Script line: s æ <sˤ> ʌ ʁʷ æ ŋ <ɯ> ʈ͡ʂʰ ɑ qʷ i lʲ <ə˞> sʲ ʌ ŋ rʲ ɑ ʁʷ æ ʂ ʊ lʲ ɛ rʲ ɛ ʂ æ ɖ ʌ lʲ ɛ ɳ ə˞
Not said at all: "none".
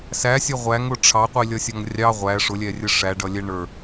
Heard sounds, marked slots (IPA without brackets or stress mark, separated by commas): sʲ, ʊ, ʌ